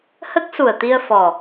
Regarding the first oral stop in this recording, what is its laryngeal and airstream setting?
plain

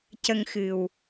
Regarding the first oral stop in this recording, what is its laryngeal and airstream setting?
plain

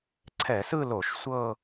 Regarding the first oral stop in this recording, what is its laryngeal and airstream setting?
click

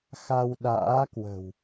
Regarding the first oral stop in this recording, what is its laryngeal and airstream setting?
implosive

